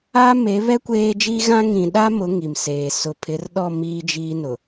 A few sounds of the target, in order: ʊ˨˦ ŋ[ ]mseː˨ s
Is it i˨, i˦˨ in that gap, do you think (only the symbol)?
i˨